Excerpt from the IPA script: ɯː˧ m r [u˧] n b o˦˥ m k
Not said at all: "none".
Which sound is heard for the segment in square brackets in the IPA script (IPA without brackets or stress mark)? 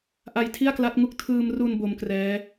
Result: u˧